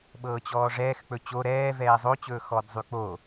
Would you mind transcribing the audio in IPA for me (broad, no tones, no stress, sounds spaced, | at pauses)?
ɓ ɤː t͡ɕ ɔː ʐ ɛː x k͡p ɵ t͡ɕ o ɾ ɛː v ɛː zˤ o t͡ɕ ɵː x ɔ d zˤ y k͡p o